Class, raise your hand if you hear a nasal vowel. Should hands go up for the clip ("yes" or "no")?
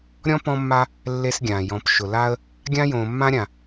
yes